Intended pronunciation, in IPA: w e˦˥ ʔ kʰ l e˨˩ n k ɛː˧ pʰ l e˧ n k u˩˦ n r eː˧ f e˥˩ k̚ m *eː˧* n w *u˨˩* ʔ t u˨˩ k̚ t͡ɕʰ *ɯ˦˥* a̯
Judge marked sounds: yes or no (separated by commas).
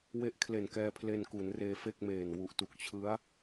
no, yes, yes